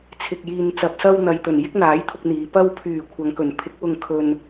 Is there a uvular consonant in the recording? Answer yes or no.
no